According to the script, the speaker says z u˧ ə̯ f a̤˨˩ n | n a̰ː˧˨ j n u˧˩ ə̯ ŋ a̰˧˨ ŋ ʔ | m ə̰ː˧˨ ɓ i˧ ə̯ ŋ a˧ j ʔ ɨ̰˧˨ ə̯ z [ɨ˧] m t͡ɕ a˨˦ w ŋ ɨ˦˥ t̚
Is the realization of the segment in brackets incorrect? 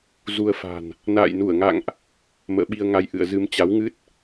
no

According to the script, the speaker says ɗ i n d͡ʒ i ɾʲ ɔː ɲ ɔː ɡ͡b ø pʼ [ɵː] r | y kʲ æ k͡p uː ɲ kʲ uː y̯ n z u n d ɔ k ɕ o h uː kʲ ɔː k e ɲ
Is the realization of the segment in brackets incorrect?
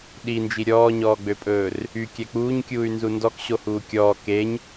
no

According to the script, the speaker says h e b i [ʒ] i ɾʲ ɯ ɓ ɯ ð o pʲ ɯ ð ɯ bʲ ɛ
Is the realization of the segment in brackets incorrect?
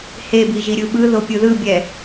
no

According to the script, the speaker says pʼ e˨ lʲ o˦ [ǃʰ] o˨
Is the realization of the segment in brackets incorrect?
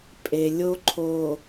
no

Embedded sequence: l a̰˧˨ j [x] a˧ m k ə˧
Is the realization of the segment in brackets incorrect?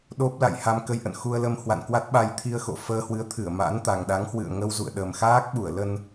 yes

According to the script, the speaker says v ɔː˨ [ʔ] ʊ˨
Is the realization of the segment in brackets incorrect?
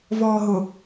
yes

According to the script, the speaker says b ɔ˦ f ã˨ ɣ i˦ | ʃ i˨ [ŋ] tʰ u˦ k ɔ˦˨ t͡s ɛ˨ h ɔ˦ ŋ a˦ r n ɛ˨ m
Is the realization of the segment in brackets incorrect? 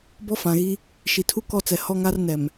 yes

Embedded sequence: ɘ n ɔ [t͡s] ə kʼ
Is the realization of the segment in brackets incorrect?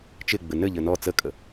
no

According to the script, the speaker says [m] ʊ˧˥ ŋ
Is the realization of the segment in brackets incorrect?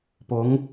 yes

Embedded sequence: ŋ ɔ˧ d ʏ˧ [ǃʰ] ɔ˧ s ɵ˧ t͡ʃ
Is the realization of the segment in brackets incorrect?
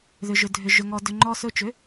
yes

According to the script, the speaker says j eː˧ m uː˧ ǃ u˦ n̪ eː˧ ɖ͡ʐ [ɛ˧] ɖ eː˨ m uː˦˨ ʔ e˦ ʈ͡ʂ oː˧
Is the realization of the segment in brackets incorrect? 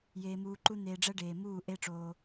yes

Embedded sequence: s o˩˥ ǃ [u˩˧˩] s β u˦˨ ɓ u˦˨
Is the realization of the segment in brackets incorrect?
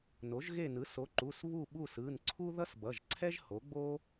no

